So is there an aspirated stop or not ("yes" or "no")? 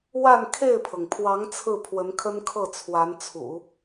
yes